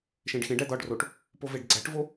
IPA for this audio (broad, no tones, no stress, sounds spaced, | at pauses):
ʃ ẽ ɖ x ẽ ɖ æ d̪ ɒ ɖ r o ʈ | p o v e ɖ ɡ͡ǀ æ ʈ v o